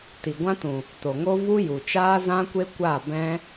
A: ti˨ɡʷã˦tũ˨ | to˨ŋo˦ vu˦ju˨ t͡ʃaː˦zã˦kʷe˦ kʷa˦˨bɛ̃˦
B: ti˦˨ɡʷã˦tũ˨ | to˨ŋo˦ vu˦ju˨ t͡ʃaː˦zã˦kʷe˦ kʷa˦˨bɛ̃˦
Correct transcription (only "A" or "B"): A